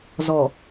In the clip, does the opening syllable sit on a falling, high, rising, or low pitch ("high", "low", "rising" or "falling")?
low